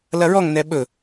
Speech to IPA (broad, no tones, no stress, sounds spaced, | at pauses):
l ɐ ɹ ɔ ŋ n ɛ ɓ ɵ